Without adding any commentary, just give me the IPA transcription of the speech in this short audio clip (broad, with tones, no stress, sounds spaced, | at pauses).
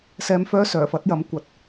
s ɛː˧ m f œː˥ s œː˨˩ f ɐ˨˥ t̚ j ɐ˨˥ m kʷ ɐ˨ t̚